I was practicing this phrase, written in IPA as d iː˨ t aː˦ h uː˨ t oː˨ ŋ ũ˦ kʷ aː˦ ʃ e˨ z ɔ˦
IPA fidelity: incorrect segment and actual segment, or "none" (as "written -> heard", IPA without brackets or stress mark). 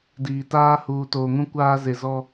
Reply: ʃ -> z